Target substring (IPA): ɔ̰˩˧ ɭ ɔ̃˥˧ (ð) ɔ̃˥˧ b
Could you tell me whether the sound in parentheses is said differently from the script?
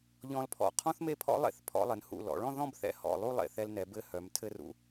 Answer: no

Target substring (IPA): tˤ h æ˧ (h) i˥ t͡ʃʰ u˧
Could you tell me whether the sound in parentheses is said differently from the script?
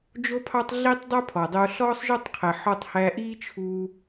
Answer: yes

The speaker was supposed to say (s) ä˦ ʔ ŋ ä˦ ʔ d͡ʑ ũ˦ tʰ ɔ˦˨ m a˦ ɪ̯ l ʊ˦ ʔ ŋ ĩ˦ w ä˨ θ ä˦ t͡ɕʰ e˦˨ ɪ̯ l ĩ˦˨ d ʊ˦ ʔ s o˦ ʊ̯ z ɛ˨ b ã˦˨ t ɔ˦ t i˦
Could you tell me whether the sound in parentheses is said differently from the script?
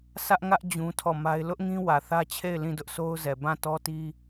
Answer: no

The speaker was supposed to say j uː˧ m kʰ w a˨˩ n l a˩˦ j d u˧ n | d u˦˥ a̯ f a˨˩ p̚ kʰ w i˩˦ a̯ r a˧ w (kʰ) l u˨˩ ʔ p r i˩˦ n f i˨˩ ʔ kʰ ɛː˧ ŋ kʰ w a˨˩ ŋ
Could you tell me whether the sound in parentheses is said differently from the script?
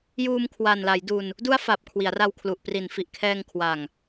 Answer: no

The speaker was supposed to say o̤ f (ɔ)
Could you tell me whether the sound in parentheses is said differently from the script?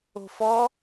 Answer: no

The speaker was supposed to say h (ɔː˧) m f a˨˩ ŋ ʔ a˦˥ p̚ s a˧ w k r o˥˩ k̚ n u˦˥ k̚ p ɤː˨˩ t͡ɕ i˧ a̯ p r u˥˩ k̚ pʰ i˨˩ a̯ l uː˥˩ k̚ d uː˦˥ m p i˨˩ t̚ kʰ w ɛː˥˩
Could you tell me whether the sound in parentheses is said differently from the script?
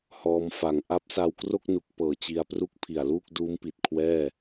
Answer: no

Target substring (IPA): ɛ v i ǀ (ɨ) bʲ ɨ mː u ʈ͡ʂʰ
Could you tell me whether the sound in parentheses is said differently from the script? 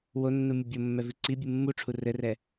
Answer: yes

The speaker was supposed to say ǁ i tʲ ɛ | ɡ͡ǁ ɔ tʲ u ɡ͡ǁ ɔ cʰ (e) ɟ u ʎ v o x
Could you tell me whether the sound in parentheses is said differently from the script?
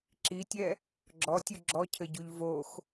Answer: yes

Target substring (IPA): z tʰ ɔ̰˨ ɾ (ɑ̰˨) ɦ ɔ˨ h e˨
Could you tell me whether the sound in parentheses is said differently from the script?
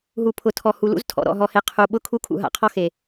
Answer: yes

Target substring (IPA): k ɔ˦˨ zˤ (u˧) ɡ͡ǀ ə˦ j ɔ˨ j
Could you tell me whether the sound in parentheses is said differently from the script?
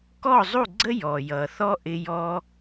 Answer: yes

